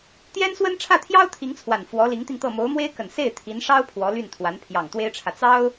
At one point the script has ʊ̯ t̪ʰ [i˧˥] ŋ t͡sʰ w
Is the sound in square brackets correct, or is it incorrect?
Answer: correct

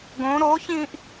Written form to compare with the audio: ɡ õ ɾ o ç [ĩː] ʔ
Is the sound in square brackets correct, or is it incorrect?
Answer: correct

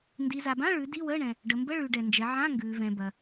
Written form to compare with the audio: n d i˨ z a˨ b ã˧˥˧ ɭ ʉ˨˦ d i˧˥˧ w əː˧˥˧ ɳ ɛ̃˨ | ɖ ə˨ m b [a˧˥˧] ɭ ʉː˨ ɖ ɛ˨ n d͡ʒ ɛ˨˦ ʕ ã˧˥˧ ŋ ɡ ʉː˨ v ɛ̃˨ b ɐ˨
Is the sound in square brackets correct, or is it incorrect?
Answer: incorrect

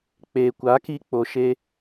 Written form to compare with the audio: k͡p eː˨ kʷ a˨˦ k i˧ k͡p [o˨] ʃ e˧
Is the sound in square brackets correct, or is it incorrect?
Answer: correct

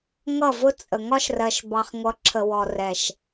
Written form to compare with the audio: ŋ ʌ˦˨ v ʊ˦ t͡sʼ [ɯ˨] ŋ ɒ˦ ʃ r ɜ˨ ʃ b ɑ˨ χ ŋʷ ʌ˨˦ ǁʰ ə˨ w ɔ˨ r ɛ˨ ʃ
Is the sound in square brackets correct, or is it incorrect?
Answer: incorrect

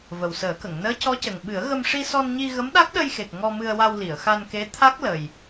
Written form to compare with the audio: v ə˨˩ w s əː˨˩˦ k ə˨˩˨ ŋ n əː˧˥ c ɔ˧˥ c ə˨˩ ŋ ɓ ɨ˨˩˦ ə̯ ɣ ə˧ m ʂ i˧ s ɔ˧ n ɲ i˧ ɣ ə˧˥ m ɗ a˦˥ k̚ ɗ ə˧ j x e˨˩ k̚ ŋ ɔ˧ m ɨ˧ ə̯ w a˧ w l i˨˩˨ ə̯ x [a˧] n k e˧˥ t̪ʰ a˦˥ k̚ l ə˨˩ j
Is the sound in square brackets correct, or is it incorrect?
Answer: correct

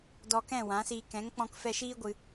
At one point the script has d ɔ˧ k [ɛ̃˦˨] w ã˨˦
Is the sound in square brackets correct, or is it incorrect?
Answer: correct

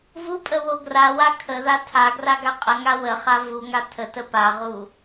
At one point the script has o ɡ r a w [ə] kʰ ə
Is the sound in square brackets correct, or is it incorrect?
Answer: incorrect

